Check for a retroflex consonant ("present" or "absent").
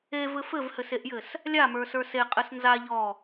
absent